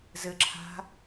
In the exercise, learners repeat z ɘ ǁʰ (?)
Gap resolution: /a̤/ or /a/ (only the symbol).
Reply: a̤